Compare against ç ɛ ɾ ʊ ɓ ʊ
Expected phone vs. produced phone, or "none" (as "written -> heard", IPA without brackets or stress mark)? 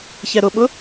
none